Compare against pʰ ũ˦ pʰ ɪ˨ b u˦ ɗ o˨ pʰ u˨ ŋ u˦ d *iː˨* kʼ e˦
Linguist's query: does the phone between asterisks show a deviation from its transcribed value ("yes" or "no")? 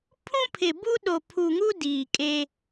no